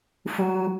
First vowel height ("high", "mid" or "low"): high